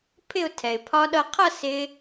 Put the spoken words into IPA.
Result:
pʰɪ˥˧ʊ̯tʰɛ˩ɪ̯pʰɒ˦˥ ɗʌ˧qʰʌ˥˧ sɪ˦˥

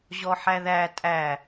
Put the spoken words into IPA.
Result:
ʑɔħæðæ tʼæ

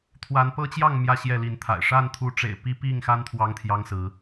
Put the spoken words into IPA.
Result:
t̪ʰwa˨˦npɤ˦t͡ɕjɑ˥˨ŋ mjä˥˨ɕjɛ˥˨li˨˦nt̪ʰa̰˨˩ɪ̯ ʂa˥˨nt̪ʰu˨˦ʈ͡ʂḛ˨˩ɪ̯ pi˦pi˥˨ŋxa˦n t̪ʰwɑ˦ŋt̪ʰjɑ˦ŋsɹ̩˨˦

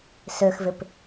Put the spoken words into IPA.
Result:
søxvɪp

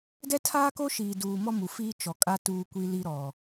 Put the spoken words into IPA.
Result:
dɛ˦tʰaː˦ko˦ʃiː˨ duː˨mɔ˦ mu˨fiː˦t͡ʃɔ˨kʼa˦ tuː˦kʷi˦ li˦ɾɔ˨

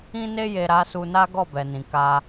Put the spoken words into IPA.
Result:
ĩ˧ne˧je˨ ɾa˨˦su˧na˦ ɡɔ˦˨bɛ˨nĩ˨ ka˧

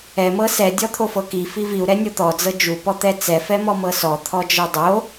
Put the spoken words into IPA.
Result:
ɛ mɤsɛ dʲɔt̪ʰofɤki fiviu̯ ɾɛnʲot̪ɔ d͡zɤd͡ʒu pɔt̪ɛt͡sɛ fɛmɔmɤsɔ t̪ʰɔd͡ʒɤdˤo

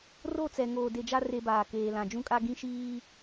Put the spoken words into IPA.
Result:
ro˦˨ t͡sɛ˨ ŋoː˨de˨d͡ʒa˦ re˦baː˨keː˨lã˨ d͡ʒũ˦kʼa˦ɡĩ˦ʃiː˦

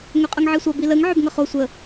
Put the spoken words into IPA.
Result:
ŋøqʼʌŋʕisʷʌ biləŋ ʕøbŋʌχo sʷə

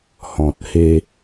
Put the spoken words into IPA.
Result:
hɔ̃˨t̚he˧

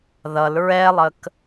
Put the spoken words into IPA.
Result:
ðʌl ɹɛlˠək

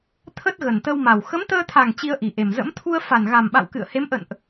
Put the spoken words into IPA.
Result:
t̪ʰə˦˥t̚ ɣə˨˩nt̪ə˧wma˨˩w xə˨˦mt̪əː˧t̪ʰa˨˩ŋ t͡ɕi˧ə̯ʔi˨˩ʔe˨˩mzə̰˧˥m t̪ʰu˧ə̯fa˨˩nɣa˨˩mɓa̰˧˨w kɨ̰˧˨ə̯he˨˦mʔə̰˧˨nʔ

